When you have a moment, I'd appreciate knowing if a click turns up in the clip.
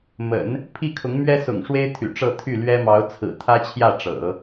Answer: no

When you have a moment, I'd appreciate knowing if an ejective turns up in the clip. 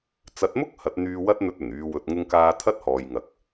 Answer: no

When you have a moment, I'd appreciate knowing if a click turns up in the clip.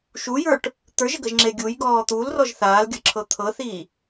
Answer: yes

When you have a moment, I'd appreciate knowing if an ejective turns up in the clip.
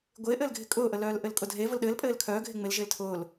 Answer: yes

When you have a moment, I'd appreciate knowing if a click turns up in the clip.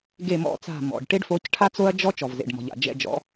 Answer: no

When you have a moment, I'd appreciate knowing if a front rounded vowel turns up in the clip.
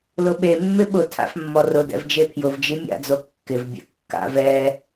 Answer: no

